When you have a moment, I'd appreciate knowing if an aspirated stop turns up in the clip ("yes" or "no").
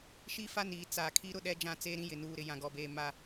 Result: yes